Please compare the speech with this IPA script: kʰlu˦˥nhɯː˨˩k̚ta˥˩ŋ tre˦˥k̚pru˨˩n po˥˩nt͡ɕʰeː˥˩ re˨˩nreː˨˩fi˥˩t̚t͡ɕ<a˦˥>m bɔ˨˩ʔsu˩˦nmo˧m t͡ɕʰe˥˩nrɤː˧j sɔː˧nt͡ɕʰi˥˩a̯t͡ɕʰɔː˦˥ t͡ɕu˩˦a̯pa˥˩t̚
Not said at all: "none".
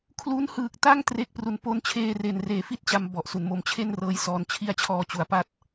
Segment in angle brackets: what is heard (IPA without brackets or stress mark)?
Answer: a˧